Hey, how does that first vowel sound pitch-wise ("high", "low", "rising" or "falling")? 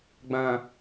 low